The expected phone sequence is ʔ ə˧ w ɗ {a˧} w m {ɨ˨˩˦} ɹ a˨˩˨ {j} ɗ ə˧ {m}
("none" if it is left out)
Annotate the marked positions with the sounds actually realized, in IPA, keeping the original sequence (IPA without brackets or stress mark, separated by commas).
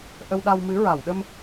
a˧, ɨ˧˥, w, m